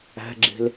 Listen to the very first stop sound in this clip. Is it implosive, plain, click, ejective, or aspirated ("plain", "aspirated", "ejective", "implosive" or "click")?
click